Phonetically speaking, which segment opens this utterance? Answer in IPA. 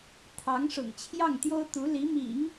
t̪ʰ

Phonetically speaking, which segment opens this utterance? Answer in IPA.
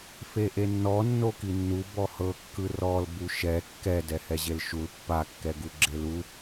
f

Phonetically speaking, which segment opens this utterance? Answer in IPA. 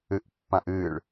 ɨ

